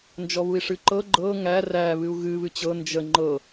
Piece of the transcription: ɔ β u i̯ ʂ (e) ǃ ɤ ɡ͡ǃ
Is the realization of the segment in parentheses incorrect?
yes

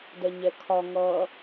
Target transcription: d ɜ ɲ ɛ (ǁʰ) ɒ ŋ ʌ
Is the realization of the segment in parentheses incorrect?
yes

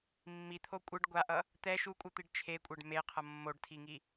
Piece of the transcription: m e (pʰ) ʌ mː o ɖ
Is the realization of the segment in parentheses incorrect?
yes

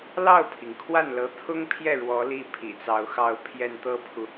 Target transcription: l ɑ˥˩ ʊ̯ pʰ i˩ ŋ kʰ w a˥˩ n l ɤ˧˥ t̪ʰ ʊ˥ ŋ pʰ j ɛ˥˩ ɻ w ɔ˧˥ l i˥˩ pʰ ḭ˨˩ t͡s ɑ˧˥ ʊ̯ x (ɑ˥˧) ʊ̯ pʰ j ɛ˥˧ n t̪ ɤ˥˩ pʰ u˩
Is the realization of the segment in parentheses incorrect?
no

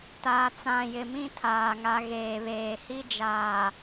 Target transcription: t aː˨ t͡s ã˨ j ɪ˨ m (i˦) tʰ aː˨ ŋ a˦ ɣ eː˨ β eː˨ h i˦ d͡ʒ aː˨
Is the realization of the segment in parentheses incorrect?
yes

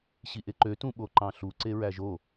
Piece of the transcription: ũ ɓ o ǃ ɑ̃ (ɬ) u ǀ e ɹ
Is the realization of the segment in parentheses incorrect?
no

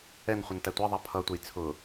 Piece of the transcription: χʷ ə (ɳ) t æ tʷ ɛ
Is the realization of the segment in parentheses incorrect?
yes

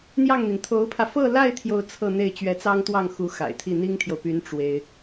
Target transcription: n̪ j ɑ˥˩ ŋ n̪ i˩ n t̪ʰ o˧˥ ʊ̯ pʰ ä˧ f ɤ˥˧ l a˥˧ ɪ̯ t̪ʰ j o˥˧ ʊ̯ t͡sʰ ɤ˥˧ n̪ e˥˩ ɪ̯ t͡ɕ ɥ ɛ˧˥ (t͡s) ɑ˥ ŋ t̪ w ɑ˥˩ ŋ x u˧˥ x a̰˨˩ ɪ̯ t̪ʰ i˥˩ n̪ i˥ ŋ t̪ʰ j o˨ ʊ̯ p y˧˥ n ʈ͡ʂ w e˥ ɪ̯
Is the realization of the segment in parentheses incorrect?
no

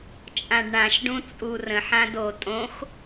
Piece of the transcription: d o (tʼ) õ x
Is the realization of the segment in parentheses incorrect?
no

